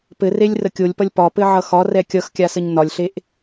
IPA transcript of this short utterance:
pɘrelʲrə kʲolʲpʌlʲ pɒpɘʕʌ xɒrɛ kʲʌxkʲasəɲ nɒlʲɬeʔ

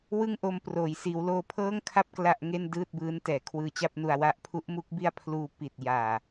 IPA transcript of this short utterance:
wɯ˥˩ŋʔo˧m proː˩˦jsiː˩˦wloː˧ pʰɤː˥˩ŋkʰa˥˩p̚ kla˥˩ʔŋe˥˩n dɯː˥˩t̚bɯː˦˥ntɛː˩˦ kʰwɯː˧t͡ɕa˥˩p̚nu˧a̯wa˦˥ʔ pʰu˦˥ʔmu˦˥k̚ bi˥˩a̯ pʰluː˧ pi˨˩t̚jaː˨˩

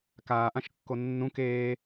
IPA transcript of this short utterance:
kaːʔãʃkːo nːũ keː

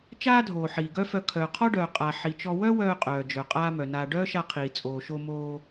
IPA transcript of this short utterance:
t͡ʃaː˥dʱoː˩ ħiː˩ɡœ˥fœ˧ kʰœː˩qʰɔ˥ɖœː˩ qʼa˩ ħi˩t͡ʃɔ˧ wœ˥wœː˧qʼœː˩ d͡ʒœ˩ qʼaː˥mœ˩naː˧ ɖœː˥ʃa˧qʰiː˩ t͡sʼoː˩ʃo˧moː˧

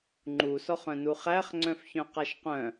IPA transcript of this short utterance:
ŋ͡ǃusɔχœ̃nu χæχŋ͡ǀœ̃fçœ̃qaʃ qœ̃

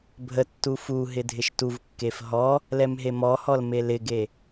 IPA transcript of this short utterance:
bʱə tːufuɦɪ dʱɪʃtuvkːef ɦɔ | lɛmɦemɔhɔl melɪɡe

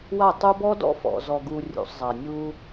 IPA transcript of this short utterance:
wa˦˨tˤu˦ bɔ˦dɔ̰˦fɔ̰˨ zɔ˨ɡu˨ rʲṵ˨sˤzˤa˨nʲu˦

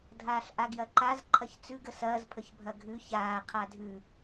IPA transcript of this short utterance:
dʱaːɬʔaɡjɐǃaz ǃʰɐçt͡sʉɡ əsɐːz pʰəçbʱɐɡʱʉ çaː qʰadʱʉ

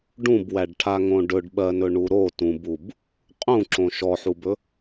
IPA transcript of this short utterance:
ɖũbwæɖʈʰaŋõ ɖɵɖɓɜnɵɳu ɾotũbub | qʼũǁõ ʃɔħubɵ

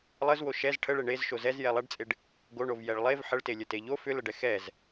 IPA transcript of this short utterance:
lˠəzwo ʃɛz ʈʰəɭe ɳez ʃozɛz jɛlˠɛɖt͡sʼeɖ | ɡoɳov jɛɭlˠev ħəɭtelʲə teʎo fʏləɖɛ xɛz

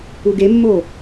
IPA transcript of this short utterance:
uɡemːo

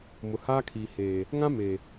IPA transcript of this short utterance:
mʊ˨haː˦kʰiː˨ heː˨ | ŋã˦ me˨

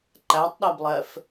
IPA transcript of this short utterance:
ǃætˤɗæblˠɛf

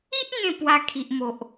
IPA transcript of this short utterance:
i˦ʔ ŋẽ˥˧pwa˧kʰi˨ʔmo˨ʔ

